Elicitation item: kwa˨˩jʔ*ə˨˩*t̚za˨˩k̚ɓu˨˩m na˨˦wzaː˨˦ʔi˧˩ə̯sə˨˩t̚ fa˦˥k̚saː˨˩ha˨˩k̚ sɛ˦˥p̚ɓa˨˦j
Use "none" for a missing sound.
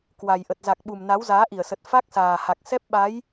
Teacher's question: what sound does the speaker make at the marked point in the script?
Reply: ə˨˩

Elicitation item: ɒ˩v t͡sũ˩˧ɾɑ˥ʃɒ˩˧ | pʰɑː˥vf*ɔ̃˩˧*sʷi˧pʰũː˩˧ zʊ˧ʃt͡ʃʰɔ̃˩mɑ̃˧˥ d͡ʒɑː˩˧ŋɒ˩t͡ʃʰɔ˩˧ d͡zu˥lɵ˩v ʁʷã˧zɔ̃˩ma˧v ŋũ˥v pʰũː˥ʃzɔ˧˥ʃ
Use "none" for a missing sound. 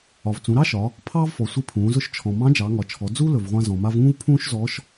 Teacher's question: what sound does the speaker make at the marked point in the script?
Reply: ɔ˩˧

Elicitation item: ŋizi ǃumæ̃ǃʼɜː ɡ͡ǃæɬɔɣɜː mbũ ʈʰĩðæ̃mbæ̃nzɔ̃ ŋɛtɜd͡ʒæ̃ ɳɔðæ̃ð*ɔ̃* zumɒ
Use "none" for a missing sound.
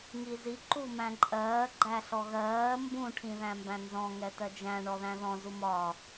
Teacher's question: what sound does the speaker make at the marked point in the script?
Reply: ɔ̃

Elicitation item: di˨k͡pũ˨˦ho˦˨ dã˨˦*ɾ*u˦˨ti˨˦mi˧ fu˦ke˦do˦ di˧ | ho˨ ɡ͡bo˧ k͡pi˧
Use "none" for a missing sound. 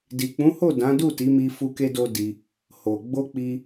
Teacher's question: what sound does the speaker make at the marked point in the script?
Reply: d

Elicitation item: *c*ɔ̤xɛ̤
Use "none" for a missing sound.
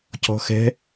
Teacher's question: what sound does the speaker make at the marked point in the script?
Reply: c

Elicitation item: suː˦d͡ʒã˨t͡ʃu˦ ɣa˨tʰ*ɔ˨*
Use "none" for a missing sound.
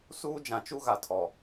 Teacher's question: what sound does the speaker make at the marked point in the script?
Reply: ɔ˨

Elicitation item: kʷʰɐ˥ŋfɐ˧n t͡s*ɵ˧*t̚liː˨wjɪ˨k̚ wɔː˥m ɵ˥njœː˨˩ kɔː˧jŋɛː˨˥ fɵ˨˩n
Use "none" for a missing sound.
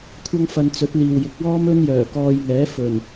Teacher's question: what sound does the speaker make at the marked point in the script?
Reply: ɵ˨˥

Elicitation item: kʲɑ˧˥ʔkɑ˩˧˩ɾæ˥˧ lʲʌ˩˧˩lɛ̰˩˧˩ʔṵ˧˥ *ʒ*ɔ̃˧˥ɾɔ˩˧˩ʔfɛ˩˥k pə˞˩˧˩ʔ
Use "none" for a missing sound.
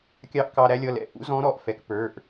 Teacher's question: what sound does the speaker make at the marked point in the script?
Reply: z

